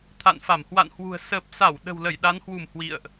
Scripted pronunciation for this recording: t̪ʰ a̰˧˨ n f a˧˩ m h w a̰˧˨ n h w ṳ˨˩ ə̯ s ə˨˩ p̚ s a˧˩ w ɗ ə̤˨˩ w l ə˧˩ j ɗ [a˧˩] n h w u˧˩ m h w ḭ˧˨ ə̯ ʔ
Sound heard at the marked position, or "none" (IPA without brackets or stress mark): a˨˦